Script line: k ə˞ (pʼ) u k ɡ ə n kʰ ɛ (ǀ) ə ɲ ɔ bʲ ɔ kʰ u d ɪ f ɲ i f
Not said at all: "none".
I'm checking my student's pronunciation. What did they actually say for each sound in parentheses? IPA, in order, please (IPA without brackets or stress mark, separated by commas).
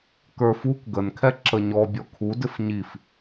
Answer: f, ǁ